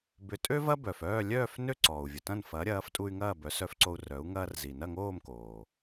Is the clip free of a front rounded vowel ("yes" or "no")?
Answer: no